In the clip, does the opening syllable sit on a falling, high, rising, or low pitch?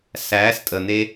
rising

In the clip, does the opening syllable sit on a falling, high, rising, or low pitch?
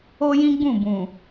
high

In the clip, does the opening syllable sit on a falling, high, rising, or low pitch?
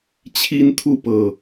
high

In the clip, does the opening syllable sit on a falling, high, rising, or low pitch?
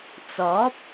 rising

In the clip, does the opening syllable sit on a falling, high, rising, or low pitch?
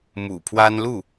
low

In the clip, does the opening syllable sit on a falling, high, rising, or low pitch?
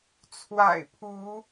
low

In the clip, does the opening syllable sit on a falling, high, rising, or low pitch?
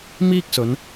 high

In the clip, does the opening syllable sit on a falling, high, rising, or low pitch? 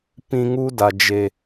high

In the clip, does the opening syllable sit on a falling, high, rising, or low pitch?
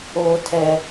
high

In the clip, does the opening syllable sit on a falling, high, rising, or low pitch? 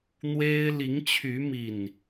high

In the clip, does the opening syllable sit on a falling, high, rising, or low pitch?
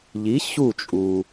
rising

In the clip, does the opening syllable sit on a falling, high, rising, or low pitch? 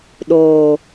low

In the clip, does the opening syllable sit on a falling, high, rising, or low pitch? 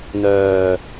low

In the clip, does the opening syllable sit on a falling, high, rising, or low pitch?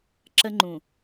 high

